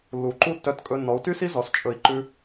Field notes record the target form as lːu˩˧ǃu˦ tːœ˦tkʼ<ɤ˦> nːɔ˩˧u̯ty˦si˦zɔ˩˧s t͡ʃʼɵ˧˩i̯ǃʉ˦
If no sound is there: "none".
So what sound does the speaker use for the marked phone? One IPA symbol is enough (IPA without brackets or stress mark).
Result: ɵ˦